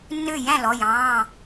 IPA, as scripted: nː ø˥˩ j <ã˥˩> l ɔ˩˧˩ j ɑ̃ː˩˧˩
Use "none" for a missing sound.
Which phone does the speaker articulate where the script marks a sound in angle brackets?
æ̃˥˩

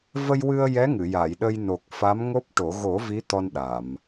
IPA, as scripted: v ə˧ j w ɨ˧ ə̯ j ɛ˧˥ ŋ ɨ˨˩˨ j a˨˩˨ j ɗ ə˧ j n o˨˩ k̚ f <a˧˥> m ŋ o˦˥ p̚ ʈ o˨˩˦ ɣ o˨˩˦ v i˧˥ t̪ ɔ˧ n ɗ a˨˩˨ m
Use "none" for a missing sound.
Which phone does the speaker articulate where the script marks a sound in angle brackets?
a˧˥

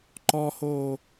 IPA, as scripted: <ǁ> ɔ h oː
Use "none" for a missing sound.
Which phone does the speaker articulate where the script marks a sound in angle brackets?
ǃ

